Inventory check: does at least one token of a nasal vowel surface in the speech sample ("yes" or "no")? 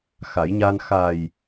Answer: no